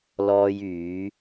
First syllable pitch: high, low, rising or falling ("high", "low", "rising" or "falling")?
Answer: high